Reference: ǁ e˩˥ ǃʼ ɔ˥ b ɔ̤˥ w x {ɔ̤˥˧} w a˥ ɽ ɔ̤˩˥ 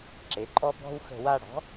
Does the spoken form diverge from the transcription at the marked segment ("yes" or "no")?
yes